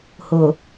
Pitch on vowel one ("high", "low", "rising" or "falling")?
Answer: low